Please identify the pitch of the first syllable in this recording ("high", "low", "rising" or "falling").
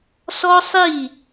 high